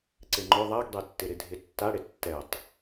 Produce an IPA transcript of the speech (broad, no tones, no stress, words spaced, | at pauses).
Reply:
ǀɪŋ͡ǃʊ ðˤaɡdˤetːɪɾɪ dʱɪtːaɽɪ tːɛtˤ